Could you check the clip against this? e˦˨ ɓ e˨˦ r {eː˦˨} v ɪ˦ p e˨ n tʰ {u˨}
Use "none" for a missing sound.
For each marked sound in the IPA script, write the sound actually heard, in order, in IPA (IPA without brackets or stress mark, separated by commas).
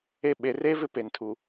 eː˦, u˨